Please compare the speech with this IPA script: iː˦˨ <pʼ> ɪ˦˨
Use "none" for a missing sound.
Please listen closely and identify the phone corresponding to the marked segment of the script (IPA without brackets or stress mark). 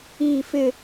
f